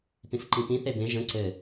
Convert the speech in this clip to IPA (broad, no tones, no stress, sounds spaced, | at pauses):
p ĩ s ǃ ĩ p ĩ θ e b ẽ ʒ ə̃ ǀ ɘ